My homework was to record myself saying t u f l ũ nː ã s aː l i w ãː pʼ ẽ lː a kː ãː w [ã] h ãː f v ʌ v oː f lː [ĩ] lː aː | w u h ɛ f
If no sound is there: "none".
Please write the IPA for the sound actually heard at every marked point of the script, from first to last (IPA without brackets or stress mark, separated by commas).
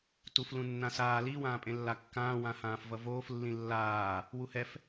ã, ĩ